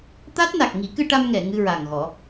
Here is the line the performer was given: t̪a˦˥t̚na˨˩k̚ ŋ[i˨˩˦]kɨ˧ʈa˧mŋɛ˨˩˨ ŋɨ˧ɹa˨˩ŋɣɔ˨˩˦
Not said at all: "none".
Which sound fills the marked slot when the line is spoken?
i˨˩˦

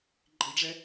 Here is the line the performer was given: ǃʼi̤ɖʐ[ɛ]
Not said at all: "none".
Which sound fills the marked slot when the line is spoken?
ɛ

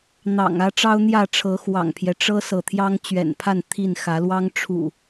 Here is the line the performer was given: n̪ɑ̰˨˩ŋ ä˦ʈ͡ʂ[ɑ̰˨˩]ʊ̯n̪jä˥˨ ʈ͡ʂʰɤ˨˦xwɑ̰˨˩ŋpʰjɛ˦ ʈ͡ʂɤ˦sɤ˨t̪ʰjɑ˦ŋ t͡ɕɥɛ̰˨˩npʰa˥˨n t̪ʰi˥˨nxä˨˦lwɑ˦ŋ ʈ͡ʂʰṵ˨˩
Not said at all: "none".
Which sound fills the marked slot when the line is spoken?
ɑ˦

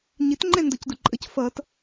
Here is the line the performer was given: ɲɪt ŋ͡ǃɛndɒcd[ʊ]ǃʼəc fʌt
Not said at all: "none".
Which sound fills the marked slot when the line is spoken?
ʊ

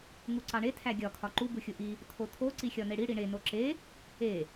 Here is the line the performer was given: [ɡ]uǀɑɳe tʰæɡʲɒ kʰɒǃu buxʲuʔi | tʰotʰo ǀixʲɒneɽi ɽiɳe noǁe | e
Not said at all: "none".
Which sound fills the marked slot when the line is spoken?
ŋ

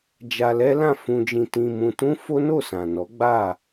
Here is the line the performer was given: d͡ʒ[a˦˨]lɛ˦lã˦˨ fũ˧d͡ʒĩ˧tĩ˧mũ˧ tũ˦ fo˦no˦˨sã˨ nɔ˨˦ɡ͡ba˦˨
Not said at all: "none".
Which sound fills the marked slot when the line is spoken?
a˧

